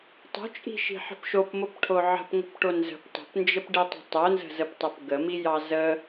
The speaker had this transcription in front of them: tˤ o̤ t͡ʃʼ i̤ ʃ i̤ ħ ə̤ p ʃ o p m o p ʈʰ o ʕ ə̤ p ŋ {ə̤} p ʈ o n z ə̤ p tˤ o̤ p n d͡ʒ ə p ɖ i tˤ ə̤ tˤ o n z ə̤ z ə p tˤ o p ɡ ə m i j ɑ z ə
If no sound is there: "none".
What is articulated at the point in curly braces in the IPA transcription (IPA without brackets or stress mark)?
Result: ə̤